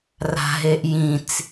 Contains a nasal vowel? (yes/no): yes